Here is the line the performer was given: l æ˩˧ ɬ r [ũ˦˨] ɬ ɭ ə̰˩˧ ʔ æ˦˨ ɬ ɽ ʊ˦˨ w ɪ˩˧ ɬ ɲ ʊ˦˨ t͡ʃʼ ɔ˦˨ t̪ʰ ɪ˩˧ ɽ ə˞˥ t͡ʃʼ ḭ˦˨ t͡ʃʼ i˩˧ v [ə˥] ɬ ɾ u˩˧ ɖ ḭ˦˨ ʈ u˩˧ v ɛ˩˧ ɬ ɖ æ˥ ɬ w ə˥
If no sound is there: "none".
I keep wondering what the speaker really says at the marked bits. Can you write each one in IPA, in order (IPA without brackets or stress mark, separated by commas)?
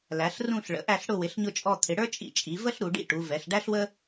ũ˦˨, ə˥